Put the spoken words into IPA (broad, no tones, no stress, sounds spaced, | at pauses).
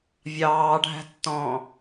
vʲ ɑː ɖʱ æ̤ tː ɔ̃ː